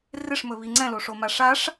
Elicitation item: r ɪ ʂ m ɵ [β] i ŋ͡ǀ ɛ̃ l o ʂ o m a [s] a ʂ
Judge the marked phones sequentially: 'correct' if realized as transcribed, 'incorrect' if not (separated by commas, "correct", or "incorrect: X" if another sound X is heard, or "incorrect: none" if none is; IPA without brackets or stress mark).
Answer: correct, incorrect: ʂ